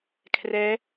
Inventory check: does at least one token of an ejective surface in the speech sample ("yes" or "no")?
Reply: no